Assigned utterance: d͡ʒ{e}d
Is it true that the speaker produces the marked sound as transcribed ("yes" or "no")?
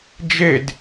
yes